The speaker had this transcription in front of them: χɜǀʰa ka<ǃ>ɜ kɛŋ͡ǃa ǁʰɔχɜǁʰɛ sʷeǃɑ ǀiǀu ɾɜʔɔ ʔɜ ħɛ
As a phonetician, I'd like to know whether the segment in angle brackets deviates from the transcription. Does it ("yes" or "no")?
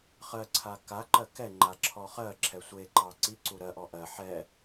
no